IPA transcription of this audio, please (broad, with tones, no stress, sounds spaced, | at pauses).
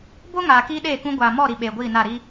b o˦ ŋ aː˨ k iː˦ ɗ eː˦˨ k ũ˦ ɡʷ aː˨ m ɔ˦˨ ɾ i˨ ɓ eː˨ ɡʷ iː˦˨ n a˦˨ ɾ i˦